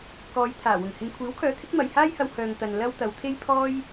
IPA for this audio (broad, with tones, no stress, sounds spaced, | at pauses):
k ɔː˨˧ j t̪ʰ aː˨˩ w ʊ˨˩ ŋ h ɪ˧ ŋ kʷʰ iː˨˥ w kʰ œː˨˥ t̪ʰ ɪ˨˥ k̚ m ɐ˨ j h aː˥ j h ɐ˧ w h œː˨ ŋ t̪ ɐ˨ n l ɐ˥ w t̪ ɐ˨˧ w t̪ʰ e˥ j pʰ ɔː˥ j